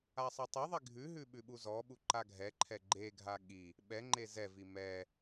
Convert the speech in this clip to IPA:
asˤatˤeðˤi ɡʱʉɦʉ ɓʉɓuzɔɓu ǃaɡʱɛǃʰɛ ɡ͡ǃeɡʱa ɠi | ɓɛŋ͡ǃe zɛvi mɛ

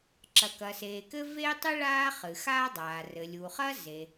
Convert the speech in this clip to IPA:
ǁɐ˩kɐ˩seː˩ kɘ˥ veː˥tˤɨ˥ ɭaː˥χɨ˩xaː˥dˤaː˩ rɘ˩lʲu˩χɐ˥ ze˩

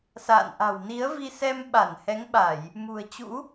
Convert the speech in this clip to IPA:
sa̰ː˧˨nʔa̤˨˩w ni˨˦ə̯vi˧ sɛ˧mɓa˧˩nhɛ˨˦ŋɓa˧˩˨j | mṳ˨˩ə̯t͡ɕṵ˧˥

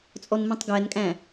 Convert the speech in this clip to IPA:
t͡sʼɔnmĩtˤɡænkʼæ̃

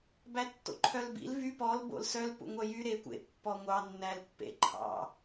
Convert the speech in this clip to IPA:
bætːo̰ǃʰœlbḭl vy pɔl bo̰lsœl pṵŋʷœjy ɾekʷḛ pːɔŋʷɑ nːælpːḛ ǃʰɑ̰

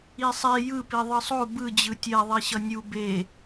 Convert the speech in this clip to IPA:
isˤe jɯpi ðˤɯsˤo bɯ d͡ʑɯtʲɛðˤe ɕʌnʲu be

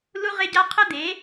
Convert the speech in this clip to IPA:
lu˦ ʁɪ˦ɟa˦ qʰə˦d̪e˨˦

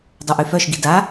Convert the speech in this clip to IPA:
dˤœʔyfœʃɡi da

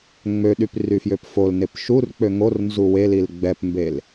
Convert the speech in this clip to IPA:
ŋ͡møɗyp ryfjøpfolnep ʃurk͡pø ŋor nzuwelil ɡ͡bɛpmbel

